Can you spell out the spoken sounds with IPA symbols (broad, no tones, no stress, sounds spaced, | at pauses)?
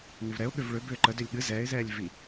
n ʏ v ɾ ɛ ʊ̯ ɠ ʏ v ɭ ʏ b ʏː ǃ ə d ʏ lʲ ɠ ɨ z ɛː ɪ̯ z ɛː lʲ v i